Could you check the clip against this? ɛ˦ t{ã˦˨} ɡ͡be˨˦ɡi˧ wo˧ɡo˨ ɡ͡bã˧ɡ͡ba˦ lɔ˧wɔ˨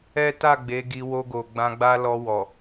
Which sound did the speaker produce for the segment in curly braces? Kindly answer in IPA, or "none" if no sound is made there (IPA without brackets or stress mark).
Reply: a˦˨